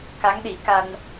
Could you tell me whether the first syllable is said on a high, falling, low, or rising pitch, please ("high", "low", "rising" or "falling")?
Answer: rising